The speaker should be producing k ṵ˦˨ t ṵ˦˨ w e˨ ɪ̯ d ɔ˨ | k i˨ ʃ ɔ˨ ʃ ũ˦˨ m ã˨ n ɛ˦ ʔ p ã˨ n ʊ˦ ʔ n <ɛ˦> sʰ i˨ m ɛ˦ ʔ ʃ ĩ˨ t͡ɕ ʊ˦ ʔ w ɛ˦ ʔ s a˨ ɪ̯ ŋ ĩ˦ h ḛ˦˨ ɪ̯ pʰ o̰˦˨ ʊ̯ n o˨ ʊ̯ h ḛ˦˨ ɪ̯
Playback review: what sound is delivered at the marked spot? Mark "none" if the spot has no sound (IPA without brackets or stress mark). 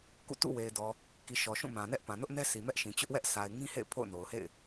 ɛ˦